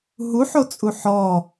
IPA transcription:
ɦuħo t͡sʼuħɔ

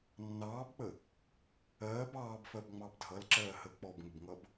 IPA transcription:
nːɑːbk͡pə | ɜːb ɑːbfɜb ŋ͡mɑbdʱʌlǁɜː həːk͡pɔbŋəbŋʌb

